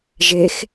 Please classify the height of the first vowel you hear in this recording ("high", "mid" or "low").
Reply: mid